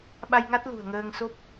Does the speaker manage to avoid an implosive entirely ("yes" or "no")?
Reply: no